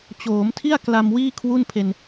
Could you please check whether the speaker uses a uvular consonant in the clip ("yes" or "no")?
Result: no